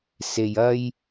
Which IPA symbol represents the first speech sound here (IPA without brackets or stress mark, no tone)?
s